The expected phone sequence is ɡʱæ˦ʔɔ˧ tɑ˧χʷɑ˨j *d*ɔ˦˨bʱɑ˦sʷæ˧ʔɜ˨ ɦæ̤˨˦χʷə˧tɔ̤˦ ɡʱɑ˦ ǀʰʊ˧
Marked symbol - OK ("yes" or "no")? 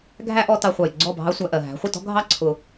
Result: no